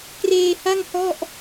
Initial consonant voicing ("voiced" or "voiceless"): voiceless